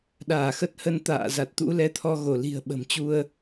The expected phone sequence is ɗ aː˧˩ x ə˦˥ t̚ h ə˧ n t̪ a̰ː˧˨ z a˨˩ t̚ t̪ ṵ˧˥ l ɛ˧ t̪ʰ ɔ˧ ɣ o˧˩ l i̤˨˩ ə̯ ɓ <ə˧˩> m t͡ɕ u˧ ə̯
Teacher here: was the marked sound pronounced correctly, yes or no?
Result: no